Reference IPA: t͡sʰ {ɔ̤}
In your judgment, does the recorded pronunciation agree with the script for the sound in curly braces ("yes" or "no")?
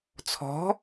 yes